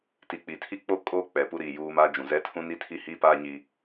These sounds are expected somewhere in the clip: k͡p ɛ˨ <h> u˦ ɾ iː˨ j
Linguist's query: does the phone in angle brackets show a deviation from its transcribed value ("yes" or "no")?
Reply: yes